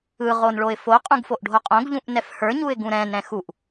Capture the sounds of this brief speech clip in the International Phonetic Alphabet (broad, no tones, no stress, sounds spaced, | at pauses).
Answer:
ɯ ʁ o n ɭ o ɪ̯ f o qʼ ũ ɡ f o ʔ ɖʱ o qʼ õ ɡ ʎ ũ ʔ n ɛ f h ə˞ ɲ u ɪ̯ ɡ ũ ɾ ɛ̃ n ɾ ɛ̃ x u ʔ